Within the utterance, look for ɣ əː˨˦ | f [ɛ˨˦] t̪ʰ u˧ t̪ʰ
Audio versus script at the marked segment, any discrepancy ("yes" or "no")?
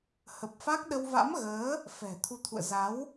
yes